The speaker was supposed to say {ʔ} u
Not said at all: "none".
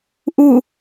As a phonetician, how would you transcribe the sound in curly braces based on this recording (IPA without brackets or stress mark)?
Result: ʔ